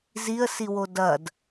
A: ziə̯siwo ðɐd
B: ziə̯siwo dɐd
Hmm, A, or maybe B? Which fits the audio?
B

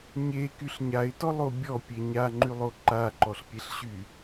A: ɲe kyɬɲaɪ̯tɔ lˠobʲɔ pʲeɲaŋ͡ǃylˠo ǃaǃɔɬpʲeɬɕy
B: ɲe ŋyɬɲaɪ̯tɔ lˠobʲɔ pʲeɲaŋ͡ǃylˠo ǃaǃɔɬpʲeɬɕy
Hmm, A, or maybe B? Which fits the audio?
A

